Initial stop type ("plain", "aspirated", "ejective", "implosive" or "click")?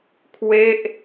aspirated